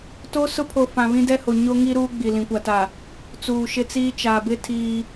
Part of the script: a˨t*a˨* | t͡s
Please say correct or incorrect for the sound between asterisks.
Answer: correct